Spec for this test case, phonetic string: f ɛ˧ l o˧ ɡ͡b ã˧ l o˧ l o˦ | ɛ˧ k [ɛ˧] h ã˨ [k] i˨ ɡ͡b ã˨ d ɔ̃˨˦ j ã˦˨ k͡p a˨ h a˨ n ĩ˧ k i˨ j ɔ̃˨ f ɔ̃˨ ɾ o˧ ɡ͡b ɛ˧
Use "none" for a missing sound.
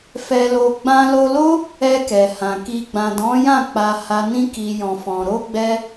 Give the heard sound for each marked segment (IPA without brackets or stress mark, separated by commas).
ɛ˨, k